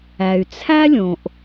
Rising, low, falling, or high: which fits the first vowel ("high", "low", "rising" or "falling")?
low